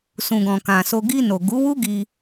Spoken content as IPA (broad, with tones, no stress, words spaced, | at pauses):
sũ˨ɡɔ̃˨ kã˨so˧ ɡi˧no˨ ɡu˨˦wu˦ɡi˧